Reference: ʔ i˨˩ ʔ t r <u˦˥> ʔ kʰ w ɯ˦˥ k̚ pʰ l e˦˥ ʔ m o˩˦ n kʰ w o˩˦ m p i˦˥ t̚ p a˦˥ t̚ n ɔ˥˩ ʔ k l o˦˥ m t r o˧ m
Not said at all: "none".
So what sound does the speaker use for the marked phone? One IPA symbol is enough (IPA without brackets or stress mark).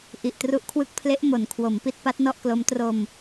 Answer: u˦˥